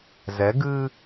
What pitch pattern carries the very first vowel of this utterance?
rising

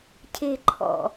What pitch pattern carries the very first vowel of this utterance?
low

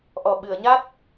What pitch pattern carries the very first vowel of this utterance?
low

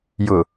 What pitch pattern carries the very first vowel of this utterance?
low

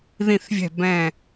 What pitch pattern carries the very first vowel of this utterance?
falling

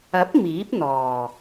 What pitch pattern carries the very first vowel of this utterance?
rising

